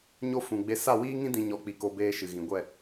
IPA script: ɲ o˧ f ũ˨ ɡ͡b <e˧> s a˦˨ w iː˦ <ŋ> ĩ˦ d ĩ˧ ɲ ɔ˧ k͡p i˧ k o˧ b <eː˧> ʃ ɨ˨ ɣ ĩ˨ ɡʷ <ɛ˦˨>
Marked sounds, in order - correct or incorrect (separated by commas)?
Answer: correct, correct, correct, correct